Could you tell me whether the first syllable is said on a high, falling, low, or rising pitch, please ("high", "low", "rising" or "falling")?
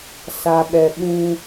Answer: low